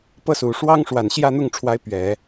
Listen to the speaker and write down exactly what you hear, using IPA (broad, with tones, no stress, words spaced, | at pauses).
pɤ˥su˨˩ ʂwɑ˥ŋʂwa˨˩n ɕjä˥˧n̪ʊ˥˩ŋ ʈ͡ʂʰwa˧˥ɪ̯ pɥɛ˨˩˦